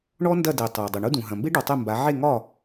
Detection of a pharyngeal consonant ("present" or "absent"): present